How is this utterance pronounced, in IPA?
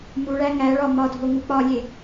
m u ɭ æ ŋ æ ɭ ɒ m ɒ dʱ o ŋ u k͡p ɒ lʲ e

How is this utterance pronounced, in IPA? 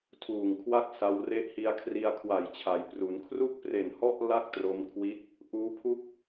tʰ uː˨˩ ŋ kʰ w a˥˩ k̚ s a˧ w r e˦˥ ʔ h i˧ a̯ kʰ r i˧ a̯ kʰ w a˨˩ j t͡ɕʰ a˩˦ j p r u˩˦ n kʰ r u˥˩ k̚ p r e˨˩ n h ɔ˥˩ ʔ l a˥˩ k̚ t r o˧ m kʰ w i˦˥ t̚ | ʔ uː˦˥ pʰ u˥˩ k̚

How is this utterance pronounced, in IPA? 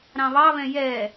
ɾ ɑ̃ β ɑ β ɛ̃ j ɛ

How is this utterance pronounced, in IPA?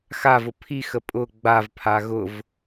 x a v ʊ pʰ i x ə pʼ ʊ ɡ͡b a v pʰ a ɣ ʊ v

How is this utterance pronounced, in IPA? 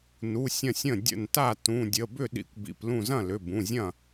n u˩˧˩ sʲ ɐ̃˧˩ sʲ ə̃˧˩ dʲ ə̰˧˩ n t a˥˩ t ũ˩˧˩ dʲ ə˩˧˩ b ʏ˥˩ ɗ ḭ˧˩ kʷ b ḭ˩˧˩ p l ũ˧˩ z ɐ̃˥˩ l ʏ˩˧˩ b ũ˩˧˩ zʲ ɐ̃˥˩

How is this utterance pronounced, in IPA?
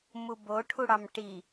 m u b o ʈʰ u ɽ ɑ m ʈ i

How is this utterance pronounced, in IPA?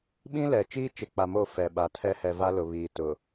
ɓ ĩ˦ l ɛ˨ t͡ʃ iː˦ t͡ʃ ɪ˨ k͡p a˨ m o˦˨ f ɛ˨ ɓ a˨ tʰ ɛ˦ h ɛ˨ v a˦ l ʊ˨ β iː˨ t ʊ˨

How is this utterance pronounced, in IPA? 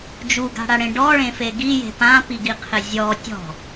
d͡ʒ u ɡ a̤ ɽ a ɽ ẽ ɖ ɔ ɭ ẽ f e ɡ i j e̤ p ã p i ɡ i qʰ ɪ zʲ ɔ tʲ ɔ̤

